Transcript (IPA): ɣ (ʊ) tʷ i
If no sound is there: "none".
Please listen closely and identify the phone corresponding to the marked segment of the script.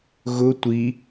ʊ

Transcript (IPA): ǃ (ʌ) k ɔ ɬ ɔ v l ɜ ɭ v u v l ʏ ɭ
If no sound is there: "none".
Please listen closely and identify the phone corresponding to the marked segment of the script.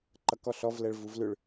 ʌ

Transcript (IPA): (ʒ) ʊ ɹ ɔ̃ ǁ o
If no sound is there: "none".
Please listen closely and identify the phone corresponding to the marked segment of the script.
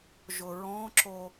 ʒ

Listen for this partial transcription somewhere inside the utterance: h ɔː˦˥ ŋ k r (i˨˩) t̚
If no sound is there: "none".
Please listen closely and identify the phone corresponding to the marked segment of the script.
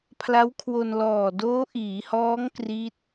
i˦˥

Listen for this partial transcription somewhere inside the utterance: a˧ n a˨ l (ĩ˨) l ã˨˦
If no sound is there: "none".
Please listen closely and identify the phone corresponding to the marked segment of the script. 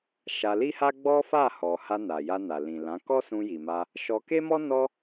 ĩ˨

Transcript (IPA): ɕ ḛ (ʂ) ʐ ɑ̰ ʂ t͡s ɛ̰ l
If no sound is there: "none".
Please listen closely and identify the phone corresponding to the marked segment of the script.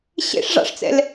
ʂ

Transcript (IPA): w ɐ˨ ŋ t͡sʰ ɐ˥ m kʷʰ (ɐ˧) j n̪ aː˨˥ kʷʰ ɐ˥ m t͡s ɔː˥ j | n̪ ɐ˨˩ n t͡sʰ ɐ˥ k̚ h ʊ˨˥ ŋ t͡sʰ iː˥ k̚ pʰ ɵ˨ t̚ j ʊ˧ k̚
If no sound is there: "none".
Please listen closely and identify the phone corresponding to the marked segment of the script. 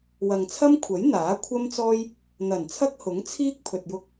ɐ˨˥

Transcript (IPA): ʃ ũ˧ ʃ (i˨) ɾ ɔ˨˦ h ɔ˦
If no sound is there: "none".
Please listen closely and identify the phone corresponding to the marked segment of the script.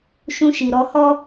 i˨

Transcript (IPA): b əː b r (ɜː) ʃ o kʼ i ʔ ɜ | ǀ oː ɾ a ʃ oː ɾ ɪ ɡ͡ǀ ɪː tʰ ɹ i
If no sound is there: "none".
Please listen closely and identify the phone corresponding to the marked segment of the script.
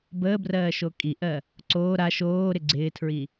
ɜː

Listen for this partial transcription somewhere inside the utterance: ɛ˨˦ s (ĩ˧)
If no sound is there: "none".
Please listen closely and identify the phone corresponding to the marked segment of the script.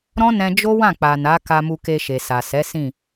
ĩ˦˨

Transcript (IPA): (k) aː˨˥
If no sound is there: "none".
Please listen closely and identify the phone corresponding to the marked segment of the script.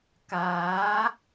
k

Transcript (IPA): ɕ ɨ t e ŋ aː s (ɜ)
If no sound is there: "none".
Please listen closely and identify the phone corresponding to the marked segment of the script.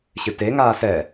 ɛ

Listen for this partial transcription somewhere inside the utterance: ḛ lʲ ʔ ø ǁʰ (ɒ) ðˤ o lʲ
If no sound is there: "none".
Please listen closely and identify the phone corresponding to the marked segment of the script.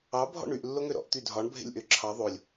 ɑ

